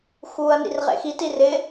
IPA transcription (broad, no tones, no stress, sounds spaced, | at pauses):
x uː ɐ̯ n ḭ r ʁ ḛ x i t i r ɪ